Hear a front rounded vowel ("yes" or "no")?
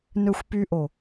yes